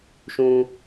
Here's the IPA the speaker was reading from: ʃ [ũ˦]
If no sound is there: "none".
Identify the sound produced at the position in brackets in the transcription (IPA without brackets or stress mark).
ũ˦